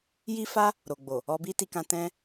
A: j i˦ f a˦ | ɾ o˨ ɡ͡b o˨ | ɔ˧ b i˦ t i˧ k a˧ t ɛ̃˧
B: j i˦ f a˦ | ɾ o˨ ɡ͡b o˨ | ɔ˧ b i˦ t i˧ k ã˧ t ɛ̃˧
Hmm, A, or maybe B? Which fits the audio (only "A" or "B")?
B